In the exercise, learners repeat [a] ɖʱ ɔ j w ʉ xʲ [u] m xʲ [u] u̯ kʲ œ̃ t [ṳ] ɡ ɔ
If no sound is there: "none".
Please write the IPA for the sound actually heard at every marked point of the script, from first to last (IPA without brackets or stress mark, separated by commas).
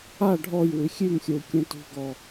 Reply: a, ʉ, o, ṳ